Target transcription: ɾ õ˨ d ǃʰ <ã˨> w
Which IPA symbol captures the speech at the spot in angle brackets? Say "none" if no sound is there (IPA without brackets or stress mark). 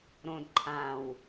ã˨